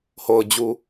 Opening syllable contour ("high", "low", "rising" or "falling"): low